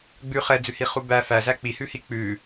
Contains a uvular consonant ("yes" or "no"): yes